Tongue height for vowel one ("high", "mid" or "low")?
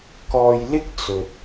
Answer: mid